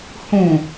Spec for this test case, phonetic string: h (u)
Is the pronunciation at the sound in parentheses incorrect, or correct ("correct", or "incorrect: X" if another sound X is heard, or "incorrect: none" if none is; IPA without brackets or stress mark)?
incorrect: ũ